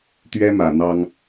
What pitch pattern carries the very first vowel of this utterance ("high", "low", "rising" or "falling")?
high